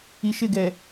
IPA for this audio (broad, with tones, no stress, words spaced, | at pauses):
i˨ʃɪ˦˨ɡɛ˨